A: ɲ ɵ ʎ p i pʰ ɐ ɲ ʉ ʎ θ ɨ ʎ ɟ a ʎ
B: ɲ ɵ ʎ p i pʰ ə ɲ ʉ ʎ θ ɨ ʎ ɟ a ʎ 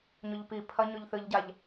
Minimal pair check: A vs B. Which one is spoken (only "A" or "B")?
A